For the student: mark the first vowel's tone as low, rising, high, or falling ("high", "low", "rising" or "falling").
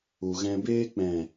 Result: low